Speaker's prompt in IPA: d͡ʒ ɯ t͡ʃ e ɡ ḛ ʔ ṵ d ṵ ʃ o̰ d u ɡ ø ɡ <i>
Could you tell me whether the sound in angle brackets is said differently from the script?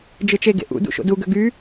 yes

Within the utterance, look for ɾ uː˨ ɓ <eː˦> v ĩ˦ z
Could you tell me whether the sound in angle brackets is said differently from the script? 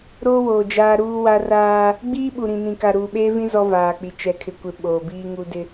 no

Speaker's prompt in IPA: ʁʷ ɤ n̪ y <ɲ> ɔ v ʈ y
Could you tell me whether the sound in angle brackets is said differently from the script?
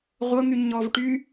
no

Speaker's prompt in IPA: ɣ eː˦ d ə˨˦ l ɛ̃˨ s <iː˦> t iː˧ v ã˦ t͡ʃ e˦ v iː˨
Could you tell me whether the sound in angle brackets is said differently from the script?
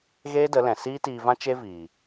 no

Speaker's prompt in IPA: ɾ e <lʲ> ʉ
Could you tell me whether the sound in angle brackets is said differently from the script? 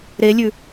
no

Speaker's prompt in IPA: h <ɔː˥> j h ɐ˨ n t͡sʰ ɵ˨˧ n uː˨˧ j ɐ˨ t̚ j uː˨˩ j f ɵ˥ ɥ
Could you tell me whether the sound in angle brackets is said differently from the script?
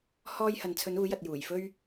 yes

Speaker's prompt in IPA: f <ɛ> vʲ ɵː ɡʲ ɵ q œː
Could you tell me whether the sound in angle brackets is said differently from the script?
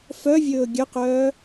yes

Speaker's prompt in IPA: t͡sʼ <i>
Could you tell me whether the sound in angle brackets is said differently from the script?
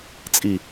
no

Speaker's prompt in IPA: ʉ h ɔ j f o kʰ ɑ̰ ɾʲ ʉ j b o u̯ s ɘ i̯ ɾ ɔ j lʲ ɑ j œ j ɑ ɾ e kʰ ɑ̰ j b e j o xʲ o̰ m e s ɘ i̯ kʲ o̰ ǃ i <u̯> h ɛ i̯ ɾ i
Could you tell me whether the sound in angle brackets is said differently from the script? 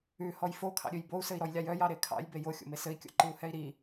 no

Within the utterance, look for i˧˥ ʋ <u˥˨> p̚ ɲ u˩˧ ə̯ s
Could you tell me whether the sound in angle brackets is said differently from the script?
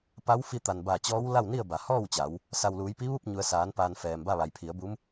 no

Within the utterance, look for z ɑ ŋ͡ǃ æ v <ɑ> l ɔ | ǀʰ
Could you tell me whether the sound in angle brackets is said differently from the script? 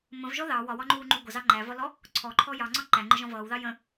yes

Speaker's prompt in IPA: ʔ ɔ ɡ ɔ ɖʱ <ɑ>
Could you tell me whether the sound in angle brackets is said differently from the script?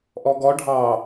no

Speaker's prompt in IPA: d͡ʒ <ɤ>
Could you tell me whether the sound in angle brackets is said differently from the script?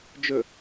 yes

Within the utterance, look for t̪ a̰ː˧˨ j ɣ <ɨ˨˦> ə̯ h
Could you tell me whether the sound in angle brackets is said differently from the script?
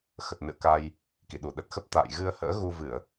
yes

